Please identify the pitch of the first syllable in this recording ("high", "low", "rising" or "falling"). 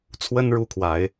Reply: high